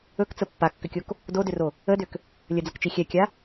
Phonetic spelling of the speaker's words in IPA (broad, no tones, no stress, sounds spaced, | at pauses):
ɵ k t͡s ə pː a kː ʏ kʲ o k | d o d ʏ r o | ə d ʏ k | lʲ ə d͡z ə k t͡ʃ i xʲ ɛ kʲ a